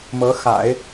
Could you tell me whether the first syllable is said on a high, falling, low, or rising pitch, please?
rising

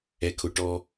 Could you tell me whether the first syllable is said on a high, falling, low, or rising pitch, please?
low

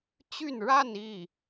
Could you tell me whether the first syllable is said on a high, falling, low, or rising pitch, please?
falling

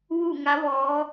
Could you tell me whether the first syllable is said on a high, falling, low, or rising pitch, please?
falling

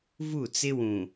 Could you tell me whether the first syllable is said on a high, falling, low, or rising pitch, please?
falling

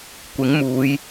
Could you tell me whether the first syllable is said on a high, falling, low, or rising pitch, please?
rising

